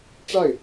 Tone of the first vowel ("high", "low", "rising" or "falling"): falling